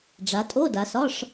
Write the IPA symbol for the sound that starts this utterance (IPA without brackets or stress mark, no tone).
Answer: ɖ͡ʐ